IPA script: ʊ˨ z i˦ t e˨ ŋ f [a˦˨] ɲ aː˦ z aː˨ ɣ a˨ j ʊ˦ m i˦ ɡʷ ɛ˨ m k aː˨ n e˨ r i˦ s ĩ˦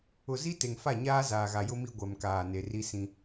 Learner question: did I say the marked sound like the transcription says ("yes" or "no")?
yes